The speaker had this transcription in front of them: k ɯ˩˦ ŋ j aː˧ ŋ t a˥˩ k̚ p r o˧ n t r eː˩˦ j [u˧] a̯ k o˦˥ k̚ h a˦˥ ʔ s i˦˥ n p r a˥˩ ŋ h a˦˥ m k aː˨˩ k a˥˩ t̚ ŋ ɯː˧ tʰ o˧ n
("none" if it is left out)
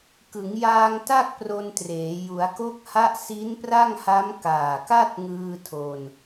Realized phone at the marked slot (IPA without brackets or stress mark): u˩˦